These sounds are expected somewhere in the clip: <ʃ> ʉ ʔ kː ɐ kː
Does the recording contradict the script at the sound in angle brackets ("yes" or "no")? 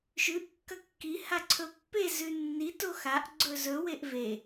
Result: no